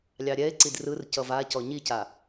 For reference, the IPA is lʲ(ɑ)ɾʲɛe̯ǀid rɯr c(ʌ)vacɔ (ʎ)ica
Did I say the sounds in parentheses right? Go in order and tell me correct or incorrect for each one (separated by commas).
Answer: correct, correct, incorrect